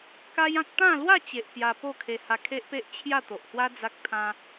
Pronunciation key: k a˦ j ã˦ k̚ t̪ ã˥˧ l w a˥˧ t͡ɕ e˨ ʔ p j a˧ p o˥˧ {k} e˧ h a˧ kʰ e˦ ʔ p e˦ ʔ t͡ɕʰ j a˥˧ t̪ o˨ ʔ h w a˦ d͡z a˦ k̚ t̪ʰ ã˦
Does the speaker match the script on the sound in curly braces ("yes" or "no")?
no